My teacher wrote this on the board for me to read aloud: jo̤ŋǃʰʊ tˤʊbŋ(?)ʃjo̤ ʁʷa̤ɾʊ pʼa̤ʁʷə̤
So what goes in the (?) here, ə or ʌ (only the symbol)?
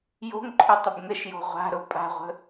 ə